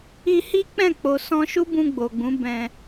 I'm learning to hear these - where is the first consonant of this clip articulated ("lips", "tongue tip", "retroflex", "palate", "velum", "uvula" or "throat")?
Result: throat